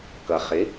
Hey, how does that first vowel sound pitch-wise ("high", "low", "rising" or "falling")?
low